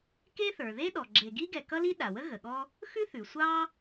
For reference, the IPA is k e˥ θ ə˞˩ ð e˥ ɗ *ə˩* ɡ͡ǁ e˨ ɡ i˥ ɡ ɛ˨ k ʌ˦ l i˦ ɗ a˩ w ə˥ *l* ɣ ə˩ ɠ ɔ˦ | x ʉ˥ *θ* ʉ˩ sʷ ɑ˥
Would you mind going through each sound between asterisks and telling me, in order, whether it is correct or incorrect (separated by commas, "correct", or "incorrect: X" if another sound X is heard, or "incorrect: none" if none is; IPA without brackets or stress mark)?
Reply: incorrect: ɔ˩, incorrect: none, correct